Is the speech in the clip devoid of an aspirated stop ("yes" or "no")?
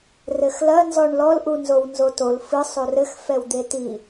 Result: yes